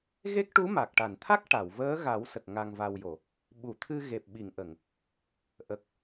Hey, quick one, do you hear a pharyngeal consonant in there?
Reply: no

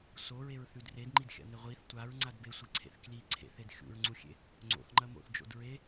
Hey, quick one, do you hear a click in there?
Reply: yes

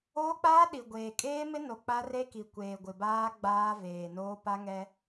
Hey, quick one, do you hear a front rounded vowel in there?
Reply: no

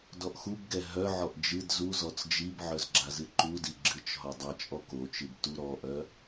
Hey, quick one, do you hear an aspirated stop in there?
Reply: no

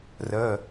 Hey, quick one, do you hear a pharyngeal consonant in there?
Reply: no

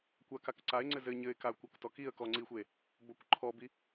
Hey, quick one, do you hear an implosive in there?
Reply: no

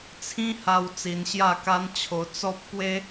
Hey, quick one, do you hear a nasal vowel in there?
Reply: yes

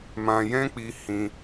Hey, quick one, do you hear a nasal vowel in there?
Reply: yes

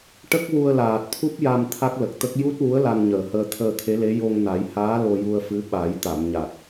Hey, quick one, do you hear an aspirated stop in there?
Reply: yes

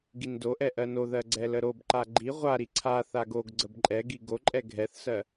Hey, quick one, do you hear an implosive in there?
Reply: no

